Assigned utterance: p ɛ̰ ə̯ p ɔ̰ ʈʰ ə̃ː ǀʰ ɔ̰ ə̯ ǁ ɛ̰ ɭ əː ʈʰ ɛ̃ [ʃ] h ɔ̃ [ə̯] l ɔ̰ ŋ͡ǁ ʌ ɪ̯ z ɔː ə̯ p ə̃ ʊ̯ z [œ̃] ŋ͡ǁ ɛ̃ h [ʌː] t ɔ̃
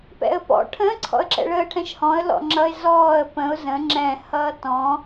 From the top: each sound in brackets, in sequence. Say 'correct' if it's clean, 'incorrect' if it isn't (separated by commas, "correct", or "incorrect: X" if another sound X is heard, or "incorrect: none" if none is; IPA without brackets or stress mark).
correct, correct, incorrect: ə̃, correct